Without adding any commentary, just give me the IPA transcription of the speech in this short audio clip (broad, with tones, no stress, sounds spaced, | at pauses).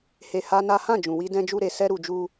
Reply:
h e˧ h a˦ n a˦ h ã˦˨ d͡ʒ ũ˨ w i˧ d ɛ̃˧ d͡ʒ u˧ ɾ e˨ s ɛ˧ ɾ u˨ d͡ʒ u˧